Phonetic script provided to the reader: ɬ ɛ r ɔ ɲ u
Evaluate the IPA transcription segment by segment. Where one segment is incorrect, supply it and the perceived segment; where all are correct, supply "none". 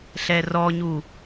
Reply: none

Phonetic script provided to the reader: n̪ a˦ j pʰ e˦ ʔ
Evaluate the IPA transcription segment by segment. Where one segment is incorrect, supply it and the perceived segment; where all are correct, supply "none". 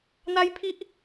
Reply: e˦ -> i˦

